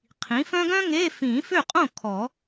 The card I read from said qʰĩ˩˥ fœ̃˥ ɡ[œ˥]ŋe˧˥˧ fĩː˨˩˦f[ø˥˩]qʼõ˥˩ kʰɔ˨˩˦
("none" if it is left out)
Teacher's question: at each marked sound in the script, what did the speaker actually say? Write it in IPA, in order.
œ̃˥, ø˥˩

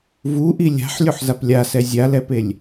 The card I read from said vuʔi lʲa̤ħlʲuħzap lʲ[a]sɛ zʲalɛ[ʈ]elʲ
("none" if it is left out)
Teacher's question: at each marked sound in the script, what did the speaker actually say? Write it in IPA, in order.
a, p

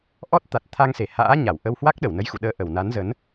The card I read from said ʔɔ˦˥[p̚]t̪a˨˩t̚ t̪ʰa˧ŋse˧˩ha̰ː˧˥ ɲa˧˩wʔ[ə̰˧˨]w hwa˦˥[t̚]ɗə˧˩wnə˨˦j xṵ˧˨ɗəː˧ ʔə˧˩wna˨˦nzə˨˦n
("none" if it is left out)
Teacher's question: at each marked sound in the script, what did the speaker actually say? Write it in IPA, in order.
t̚, ə˧, k̚

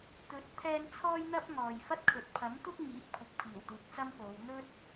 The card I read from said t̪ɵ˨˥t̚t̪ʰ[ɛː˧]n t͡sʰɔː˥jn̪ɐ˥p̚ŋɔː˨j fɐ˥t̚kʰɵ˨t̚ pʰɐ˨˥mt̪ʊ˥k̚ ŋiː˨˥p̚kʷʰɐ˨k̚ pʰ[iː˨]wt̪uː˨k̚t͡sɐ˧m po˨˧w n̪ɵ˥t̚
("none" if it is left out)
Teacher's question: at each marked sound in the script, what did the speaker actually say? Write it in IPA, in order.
ɛː˧, iː˨˩

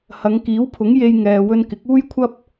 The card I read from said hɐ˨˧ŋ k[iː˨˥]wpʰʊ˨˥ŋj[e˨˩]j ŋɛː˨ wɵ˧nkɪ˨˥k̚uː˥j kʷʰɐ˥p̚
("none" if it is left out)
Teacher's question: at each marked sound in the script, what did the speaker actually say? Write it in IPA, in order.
iː˨˥, e˧

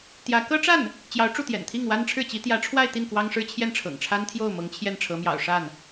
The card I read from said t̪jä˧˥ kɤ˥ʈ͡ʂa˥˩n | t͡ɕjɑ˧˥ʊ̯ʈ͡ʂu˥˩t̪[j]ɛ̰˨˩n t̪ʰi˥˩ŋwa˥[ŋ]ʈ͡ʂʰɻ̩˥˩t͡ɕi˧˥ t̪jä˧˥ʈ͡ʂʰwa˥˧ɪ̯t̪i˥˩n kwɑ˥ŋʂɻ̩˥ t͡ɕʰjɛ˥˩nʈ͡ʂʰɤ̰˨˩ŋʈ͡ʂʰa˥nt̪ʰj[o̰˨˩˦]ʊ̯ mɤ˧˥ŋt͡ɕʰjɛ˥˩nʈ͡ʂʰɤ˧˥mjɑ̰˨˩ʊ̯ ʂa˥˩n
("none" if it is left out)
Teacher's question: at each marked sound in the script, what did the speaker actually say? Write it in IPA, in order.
j, n, o˥˩

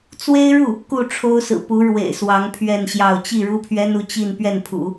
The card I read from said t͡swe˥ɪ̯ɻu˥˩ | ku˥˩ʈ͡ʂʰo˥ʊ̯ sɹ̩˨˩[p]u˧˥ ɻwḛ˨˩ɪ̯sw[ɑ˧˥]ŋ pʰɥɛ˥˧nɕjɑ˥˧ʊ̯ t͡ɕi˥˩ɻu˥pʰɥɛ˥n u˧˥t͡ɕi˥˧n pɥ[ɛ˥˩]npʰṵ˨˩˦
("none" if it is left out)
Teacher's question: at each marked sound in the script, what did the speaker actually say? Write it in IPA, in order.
p, ɑ˧˥, ɛ˥˩

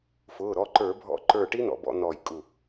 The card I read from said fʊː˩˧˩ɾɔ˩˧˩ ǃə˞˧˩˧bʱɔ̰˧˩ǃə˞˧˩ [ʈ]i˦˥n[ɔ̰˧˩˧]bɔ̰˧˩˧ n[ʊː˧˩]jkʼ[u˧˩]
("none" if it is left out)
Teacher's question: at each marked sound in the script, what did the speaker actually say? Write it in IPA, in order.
ʈ, ɔ̰˧˩˧, ɔː˧˩, u˧˩

